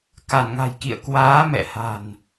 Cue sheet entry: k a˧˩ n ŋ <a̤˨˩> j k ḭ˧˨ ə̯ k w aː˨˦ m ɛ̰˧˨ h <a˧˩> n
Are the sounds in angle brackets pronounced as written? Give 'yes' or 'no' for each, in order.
yes, no

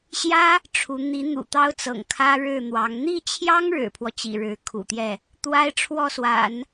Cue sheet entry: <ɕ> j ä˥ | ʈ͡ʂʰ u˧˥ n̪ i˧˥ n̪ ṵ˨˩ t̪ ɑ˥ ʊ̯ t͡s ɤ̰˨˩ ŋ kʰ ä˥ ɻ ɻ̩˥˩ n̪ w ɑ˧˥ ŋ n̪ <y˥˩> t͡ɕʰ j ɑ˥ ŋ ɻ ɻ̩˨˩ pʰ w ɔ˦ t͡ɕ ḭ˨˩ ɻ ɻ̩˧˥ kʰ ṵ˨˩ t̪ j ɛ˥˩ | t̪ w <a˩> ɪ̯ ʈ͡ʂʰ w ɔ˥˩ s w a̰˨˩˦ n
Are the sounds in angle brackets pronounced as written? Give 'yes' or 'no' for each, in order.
yes, no, no

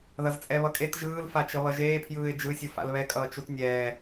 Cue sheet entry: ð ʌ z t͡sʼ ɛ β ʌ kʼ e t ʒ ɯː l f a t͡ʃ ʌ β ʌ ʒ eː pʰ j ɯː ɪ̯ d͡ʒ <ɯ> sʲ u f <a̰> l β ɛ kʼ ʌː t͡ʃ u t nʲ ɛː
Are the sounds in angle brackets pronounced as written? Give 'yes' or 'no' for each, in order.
yes, yes

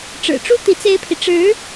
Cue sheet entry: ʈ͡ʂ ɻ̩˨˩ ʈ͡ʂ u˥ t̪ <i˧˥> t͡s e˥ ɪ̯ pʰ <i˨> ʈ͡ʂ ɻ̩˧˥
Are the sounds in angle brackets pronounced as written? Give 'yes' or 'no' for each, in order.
yes, yes

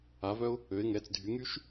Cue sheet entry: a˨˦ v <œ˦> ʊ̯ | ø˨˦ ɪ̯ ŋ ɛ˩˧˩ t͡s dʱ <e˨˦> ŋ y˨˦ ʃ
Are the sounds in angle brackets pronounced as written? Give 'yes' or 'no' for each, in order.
yes, no

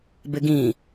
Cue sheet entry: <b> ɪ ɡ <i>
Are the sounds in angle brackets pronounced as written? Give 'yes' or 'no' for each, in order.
yes, no

